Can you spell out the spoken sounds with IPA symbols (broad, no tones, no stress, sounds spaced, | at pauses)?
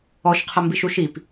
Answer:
ɔ ʃ qʰ ə m b i ʃ u ʃ i p